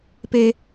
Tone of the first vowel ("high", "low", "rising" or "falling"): high